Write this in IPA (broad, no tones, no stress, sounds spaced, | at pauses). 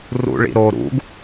r ṵ ɭ ḭ ɾ o ɾ ṵ ɡ